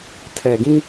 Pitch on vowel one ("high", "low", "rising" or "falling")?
low